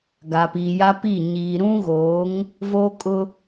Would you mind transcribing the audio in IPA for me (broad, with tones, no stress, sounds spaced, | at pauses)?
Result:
ɡ a˨ p iː˨ j a˦ p i˦˨ ɲ iː˨ ɾ ũ˦ ɣ oː˨˦ ŋ | v oː˦ kʼ ʊ˦